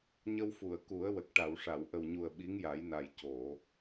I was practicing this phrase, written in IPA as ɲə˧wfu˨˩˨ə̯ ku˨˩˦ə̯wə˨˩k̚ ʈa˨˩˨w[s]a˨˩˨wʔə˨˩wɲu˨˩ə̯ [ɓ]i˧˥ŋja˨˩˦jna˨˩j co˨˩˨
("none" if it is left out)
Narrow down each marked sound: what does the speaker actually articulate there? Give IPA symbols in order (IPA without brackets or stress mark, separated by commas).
ʂ, ɓ